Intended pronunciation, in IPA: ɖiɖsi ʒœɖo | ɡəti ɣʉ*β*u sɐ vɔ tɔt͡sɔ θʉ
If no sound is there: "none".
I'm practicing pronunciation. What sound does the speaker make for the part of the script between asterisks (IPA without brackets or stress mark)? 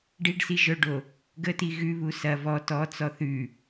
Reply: β